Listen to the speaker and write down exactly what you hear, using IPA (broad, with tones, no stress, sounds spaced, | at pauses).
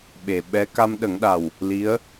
ɓ e˨˩ ɓ ɛ˧˥ k a˧ m ɗ ə˨˩˦ ŋ ɗ a˨˩ w | l i˧˥ ə̯